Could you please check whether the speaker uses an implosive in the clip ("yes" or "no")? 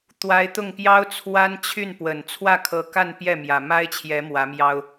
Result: no